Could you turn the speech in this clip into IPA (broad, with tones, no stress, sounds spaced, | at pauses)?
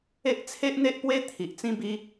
e˦ ʔ t͡sʰ e˦ ʔ n̪ e˦ ʔ p w e˦ t̪ʰ i˨ ʔ t͡s ĩ˧ b i˧